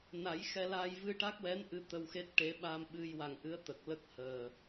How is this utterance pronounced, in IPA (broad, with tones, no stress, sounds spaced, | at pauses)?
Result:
n a˨˩˦ j x ɛ˧ l a˧ j v ɨ˧ ʈ a˦˥ k̚ w ɛ˧˥ n ʔ ɨ˧˥ t̪ ə˧ w x e˦˥ t̚ ʈ e˧˥ ɓ a˧ m ɓ ɨ˧ j w a˨˩ ŋ ʔ ɨ˧˥ ə̯ t̪ ə˨˩ k̚ l ə˦˥ k̚ h əː˨˩